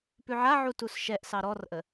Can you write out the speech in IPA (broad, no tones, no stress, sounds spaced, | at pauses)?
p ʉ ʕ a ʕ u t u s ʃ ɛ ʔ s ɑ ɾ ɔ r ʔ ə